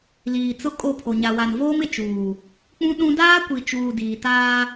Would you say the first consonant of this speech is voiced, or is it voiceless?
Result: voiced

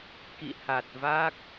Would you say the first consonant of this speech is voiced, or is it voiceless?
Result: voiceless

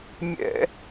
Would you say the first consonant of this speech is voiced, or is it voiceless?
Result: voiced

